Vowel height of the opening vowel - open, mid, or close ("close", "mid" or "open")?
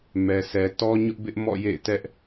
mid